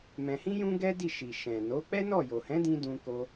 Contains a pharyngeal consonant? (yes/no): no